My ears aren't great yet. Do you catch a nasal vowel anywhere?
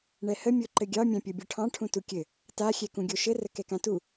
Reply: yes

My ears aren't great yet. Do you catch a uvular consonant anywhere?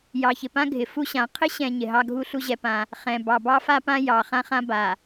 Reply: yes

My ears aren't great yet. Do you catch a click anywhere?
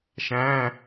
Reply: no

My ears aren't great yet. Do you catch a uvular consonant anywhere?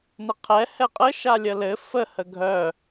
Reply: yes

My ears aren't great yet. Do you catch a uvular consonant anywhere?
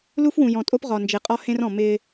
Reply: yes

